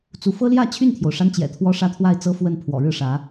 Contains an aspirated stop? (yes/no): yes